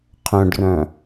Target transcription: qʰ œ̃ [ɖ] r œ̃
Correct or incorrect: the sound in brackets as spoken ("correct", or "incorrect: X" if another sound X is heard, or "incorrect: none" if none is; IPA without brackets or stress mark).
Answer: correct